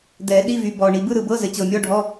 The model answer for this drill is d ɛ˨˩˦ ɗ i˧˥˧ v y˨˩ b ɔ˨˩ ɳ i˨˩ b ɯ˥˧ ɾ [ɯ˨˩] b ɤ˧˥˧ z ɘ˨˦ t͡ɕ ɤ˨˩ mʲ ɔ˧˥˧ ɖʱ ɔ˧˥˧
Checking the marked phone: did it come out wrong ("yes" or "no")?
no